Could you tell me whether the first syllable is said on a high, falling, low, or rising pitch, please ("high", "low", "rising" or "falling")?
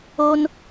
high